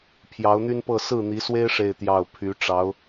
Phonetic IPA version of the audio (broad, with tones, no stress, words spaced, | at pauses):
pʰjɑ˧˥ʊ̯n̪y˥npɤ˥˧ sɹ̩˥˩n̪i˧˥swe˥ɪ̯ ʂe˥˧ɪ̯t̪jɑ˥˩ʊ̯ pʰy˧˥ ʈ͡ʂɑ˧˥ʊ̯